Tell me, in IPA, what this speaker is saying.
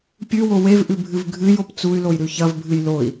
pʲ ʉ w o w e v ʔ ʉ bʱ ɨ v ɡʱ ɨ j o p t͡s u y̯ l o j ɾ ʉ ç ɐ v bʱ ɨ j l o i̯

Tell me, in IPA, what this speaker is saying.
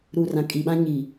ɾ u˨ r ã˨ kʼ i˨ ɓ ã˦ ɲ i˨

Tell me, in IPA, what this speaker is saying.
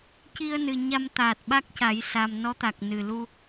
c i˧ ə̯ n ɨ˨˩ ɲ a˧ m t̪ aː˨˩ t̚ ɓ a˦˥ k̚ c a˨˩˦ j s a˨˩ m n ɔ˧˥ t̪ a˨˩ k̚ n ɨ˨˩ l u˧

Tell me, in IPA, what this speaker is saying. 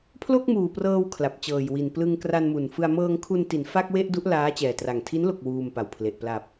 pʰ l o˥˩ k̚ m uː˨˩ p r ɤː˧ w kʰ l a˨˩ p̚ t͡ɕ ɤː˨˩ j w i˨˩ n p l ɯ˧ ŋ k r a˧ n m u˨˩ n f ɯ˧ a̯ m ɤː˧ ŋ kʰ u˧ n t i˩˦ n f a˥˩ k̚ w e˥˩ ʔ d u˦˥ ʔ l aː˦˥ t͡ɕ ɛː˨˩ t r a˨˩ ŋ tʰ i˦˥ n l o˨˩ k̚ w uː˧ m p a˨˩ w pʰ l e˨˩ ʔ p l a˨˩ p̚

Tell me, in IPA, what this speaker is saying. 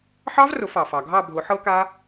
ħ ɑ˦˥ v r ʊ˨˩˦ f ɑ˩ f ɑ˩ ɡʱ ɑ˥˧ bʱ ʊ˨˩˦ ħ ɤ˦˥ k a˦˥

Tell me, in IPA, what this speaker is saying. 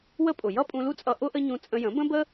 w ə˦ pʼ ʊ˨ j ʌ˦ pʼ ũ˧ l u˦ t͡sʼ ʌ˧ ʔ ʊ˦ ʔ ə˦ ɲ ũ˧ t͡sʼ ə̃˦ j ə̃˨˦ b ə̃˦ b ə˦

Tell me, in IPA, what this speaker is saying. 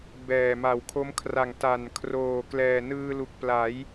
b ɛː˨˩ m a˨˩ w kʰ o˦˥ m kʰ r a˨˩ ŋ t a˨˩ n kʰ r oː˨˩ k l ɛː˨˩ n ɯː˧ l u˨˩ k̚ p l a˩˦ j

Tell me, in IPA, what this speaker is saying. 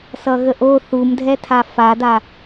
s ʌ ɣ ə ʔ o θ u m dʱ ɛ tʰ a f a d a

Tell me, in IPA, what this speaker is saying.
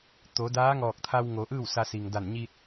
t̪ o˩˧ d aː˧˥ ŋ ɔː˧˩ k̚ t̪ʰ a˧ w ŋ o˩˧ ʔ ɯː˥˨ w s a˧ s i˩ ŋ d a˧˩ n ɲ i˧ t̚

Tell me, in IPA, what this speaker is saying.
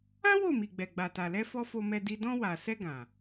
ã˦ w o˦˨ m i˨ ɡ͡b ɛ˨ ɡ͡b a˨ t a˨ l ɛ˧ f ɔ˧ f o˧ m ɛ˧ d i˧ d ɔ̃˧ w a˨ s ɛ˧ ɡ ã˨

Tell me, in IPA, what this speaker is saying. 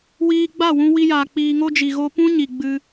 w iː˧ ɡ͡b a˦˨ w ũ˧ w i˧ j aː˨ k͡p iː˧ ŋ o˦ d͡ʒ i˨ ɣ o˧ p ũ˦ ɲ i˨ ɡ͡b ɨ˧

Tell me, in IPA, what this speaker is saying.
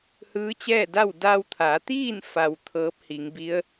h ɯː˧˥ t͡ɕ ɛː˥˨ d a˥˨ w d a˧ w t̪ʰ a˩˧ t̪ iː˥˨ n f a˩ w t̪ʰ ɤː˧˥ p̚ h i˩˧ ŋ b i˧˥ ə̯

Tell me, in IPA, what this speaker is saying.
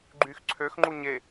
ɡ͡ǃ yː x ǀʰ ø x ŋ͡ǃ u ɲ e

